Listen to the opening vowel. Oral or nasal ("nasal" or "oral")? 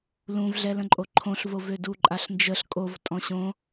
nasal